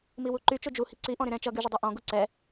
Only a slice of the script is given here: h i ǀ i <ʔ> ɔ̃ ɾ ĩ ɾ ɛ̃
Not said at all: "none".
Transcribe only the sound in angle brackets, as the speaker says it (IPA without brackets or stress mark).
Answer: ʔ